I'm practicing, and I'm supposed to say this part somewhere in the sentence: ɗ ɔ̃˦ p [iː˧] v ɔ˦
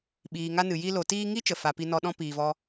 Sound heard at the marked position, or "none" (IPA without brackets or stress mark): iː˧